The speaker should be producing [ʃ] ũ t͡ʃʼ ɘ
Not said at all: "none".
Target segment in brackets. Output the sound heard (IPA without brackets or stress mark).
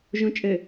ʒ